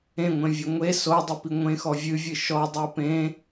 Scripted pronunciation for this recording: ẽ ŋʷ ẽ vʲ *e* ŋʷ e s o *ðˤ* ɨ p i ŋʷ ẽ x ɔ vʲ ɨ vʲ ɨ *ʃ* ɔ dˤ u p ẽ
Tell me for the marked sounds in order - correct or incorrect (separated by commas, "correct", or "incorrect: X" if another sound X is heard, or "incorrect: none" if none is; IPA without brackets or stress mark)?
incorrect: ɘ, incorrect: dˤ, correct